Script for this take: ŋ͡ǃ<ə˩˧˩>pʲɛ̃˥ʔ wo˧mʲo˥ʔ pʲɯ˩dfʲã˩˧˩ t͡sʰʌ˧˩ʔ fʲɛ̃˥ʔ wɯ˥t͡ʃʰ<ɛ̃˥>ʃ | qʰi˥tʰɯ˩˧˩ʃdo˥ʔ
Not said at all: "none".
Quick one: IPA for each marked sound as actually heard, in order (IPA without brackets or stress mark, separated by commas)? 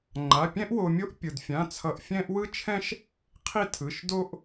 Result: a˩˧˩, ɛ̃˥